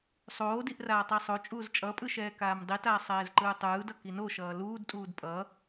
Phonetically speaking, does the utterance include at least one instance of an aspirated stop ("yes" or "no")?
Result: no